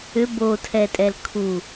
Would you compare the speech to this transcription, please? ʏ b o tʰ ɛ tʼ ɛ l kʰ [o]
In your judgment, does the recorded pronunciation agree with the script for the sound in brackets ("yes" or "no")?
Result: no